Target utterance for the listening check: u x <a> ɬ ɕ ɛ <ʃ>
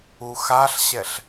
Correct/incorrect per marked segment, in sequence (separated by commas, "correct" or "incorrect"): correct, incorrect